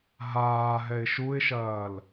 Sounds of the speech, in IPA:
ɦaːɦɛɪ̯ ʃuɪ̯ʃɐːl

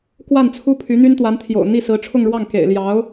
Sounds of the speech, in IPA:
kwa˥˩nt͡sʰu˥ pʰy˧˥n̪y˥nt̪wa˧˥nt̪ʰjo̰˨˩ʊ̯ n̪i˥˩sɹ̩˧˥ ʈ͡ʂʰʊ˥˧ŋɻwɑ˥˩ŋkḛ˨˩ɪ̯ ljɑ˧˥ʊ̯

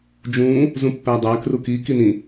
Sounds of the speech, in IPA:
d͡ʒũ | zũpːædˤæ kruki kinĩ

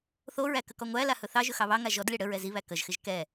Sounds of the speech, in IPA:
θoɹæ kəkɔŋʷæla hɵθɑʒɵ xɑβɑŋa ʒɔdlʲɑ ɽəɹɛ ziβæ kəʒxɪʒ kɛ

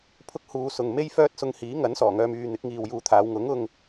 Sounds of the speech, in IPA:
pʰʊ˥k̚huː˧sʊ˨ŋ me˥jfœː˥t̚sʊ˧ŋ hiː˨˥ŋɐ˨˥n sɔː˨˩ŋœː˧m yː˧ n̪ɪ˨˥k̚ŋiː˨wjuː˧t̪ʰaː˨˧w ŋʊ˨˥ŋʊ˧ŋ

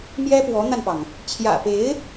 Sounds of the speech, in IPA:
mjɛ˥pwɔ˧˥n̪a˧npɑ˩ŋ | t͡ɕʰjä̰˨˩pe˧˥ɪ̯

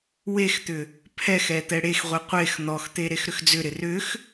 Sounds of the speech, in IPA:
wext̪ʏ | pʰɛxɛ t̪ɛɽexʁʷi qʷex n̪ɔxt̪e ɾexɾʏxd͡zʏɾɪ rʏx

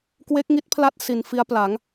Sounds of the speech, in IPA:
kwe˦˥k̚ŋi˦˥t̚pʰla˦˥t̚ si˨˩n fi˦˥a̯pla˩˦ŋ

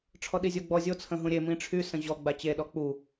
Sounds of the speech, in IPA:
ʈ͡ʂʰɔɗizʲoɡ͡bɔ zʲo t͡sʰə̃ɦũɾʲe mĩʈ͡ʂʰy sə̃ʑɔ ɡ͡bat͡ɕe ɗɔk͡pu

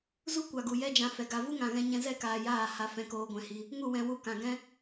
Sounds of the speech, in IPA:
zu˦kʷa˨ ɡu˨jɛ˦d͡ʒã˧ fɛ˨ɡa˧ vu˦ŋã˨ɣɛ̃˧ ɲɛ̃˧zɛ˦˨kaː˨ jaː˦˨ ha˧fɛ̃˧ koː˧ɡʷɛ̃˧hi˧ | ŋu˦˨wɛ̃˨wu˧ kã˨ ɡɛ̃˦

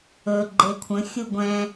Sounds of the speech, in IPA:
ɵ ɡ͡ǃekʷʰə̃ xʲuɡʷɛ̃

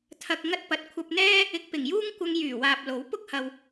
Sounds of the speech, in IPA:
t̪ʰɐ˧k̚ ŋɐ˧t̚pɐ˨t̚ kʷʰɐ˧p̚n̪ɛː˥ | ɪ˧k̚pɪ˨˩ŋjuː˥ŋ kʷɐ˧ŋjyː˨˩waː˨p̚ lo˨˥w pʊ˥k̚hɐ˨w

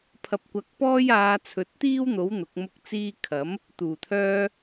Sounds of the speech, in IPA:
pʰɐ˧p̚kʷɐ˧k̚pɔː˥j aː˧t͡sʰɵ˨˥t̚t̪iː˥wn̪o˨˥w n̪ʊ˨˥k̚mʊ˥k̚t͡siː˥ kʰɐ˨˥m | t̪uː˨˩t̪ʰœː˧

